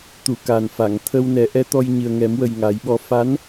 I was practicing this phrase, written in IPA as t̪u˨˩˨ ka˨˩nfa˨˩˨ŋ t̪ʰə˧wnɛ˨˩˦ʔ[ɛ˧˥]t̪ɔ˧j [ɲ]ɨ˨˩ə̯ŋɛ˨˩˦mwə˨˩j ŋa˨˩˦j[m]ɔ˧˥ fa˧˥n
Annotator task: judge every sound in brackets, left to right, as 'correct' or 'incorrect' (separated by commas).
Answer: correct, correct, incorrect